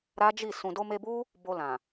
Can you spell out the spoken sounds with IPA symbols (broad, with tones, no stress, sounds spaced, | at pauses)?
ɾ a˦ d͡ʒ i˦˨ s ũ˨ d o˧ m e˧ b u˦ | b o˧ l ã˨